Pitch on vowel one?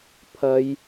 high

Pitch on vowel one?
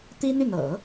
high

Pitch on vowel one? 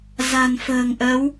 low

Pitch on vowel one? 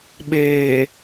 low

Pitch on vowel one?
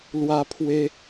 high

